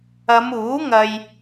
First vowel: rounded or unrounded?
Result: unrounded